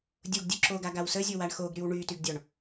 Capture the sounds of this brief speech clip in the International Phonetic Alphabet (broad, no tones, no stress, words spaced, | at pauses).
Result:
dʲoɡdʲo ǁoɡaɡaw səzʲowaɳ xoɡɾyw ɳytyɡdʲɔɳ